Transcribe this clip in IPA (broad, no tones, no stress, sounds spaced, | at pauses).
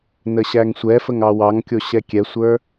n ə ɕ æ ŋ sʷ ɛ f ə ŋ ɑ w ɑ ŋ kʲ o ɕ ɛ kʲ ɛ sʷ ə˞